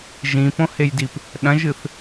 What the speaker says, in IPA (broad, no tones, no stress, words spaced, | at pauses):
ʒĩpõhejdip | ɗɐ̃ʒɨθ